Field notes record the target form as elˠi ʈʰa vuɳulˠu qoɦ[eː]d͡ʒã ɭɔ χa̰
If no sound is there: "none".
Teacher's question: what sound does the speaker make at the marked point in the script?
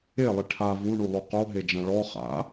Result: e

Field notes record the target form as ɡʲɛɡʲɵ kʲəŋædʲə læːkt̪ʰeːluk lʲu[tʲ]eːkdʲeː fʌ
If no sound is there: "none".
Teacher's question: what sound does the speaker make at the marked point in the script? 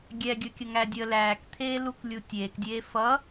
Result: tʲ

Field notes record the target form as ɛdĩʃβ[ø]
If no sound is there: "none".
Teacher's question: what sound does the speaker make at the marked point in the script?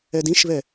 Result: ɛ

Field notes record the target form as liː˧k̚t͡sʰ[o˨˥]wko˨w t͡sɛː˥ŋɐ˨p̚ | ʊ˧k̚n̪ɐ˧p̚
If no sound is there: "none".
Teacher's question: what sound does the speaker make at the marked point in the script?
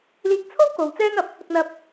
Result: o˥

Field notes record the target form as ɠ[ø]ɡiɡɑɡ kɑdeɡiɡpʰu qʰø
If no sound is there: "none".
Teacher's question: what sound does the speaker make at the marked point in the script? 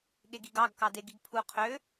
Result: e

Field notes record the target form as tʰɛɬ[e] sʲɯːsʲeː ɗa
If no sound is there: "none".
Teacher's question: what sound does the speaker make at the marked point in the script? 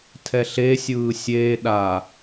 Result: e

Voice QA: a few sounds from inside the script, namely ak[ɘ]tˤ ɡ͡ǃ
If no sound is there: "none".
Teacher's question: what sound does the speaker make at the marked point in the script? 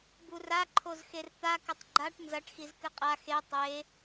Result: ɘ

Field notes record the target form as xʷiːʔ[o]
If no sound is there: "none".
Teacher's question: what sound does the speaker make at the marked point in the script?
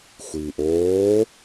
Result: oː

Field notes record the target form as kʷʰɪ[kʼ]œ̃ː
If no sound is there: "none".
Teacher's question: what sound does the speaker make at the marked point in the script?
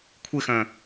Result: x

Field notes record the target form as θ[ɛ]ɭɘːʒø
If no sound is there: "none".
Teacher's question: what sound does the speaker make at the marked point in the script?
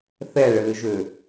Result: ɛ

